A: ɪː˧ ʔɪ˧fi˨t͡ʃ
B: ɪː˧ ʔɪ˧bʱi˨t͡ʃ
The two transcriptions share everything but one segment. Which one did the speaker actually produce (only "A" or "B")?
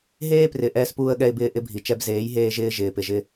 B